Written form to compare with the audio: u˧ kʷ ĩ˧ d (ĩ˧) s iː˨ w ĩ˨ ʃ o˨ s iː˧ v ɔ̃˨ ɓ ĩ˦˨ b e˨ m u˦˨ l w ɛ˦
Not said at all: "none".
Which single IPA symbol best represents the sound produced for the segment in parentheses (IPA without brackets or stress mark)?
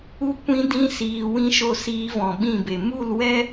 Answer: ĩ˧